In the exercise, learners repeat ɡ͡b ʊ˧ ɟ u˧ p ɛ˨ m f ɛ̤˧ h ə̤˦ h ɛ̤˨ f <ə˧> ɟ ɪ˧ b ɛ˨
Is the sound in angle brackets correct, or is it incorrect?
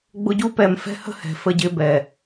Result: correct